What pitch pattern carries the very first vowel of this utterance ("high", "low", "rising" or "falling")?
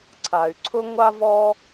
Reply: low